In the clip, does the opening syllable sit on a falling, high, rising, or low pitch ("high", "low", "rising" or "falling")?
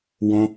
high